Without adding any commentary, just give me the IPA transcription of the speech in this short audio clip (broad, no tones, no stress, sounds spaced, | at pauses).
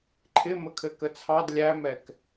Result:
ǃʰ ɪ m ə kʰ ɘ k ə t͡sʰ ɑ d lʲ æ m ɛ k